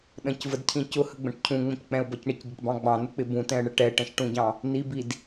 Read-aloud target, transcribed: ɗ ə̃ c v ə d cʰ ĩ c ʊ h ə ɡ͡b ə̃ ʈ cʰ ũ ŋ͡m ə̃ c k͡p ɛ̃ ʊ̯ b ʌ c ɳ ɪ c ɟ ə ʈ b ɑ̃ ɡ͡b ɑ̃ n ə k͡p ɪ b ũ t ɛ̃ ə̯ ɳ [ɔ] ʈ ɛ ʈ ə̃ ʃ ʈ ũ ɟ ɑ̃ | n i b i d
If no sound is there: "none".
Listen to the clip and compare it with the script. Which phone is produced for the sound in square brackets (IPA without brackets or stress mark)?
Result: ə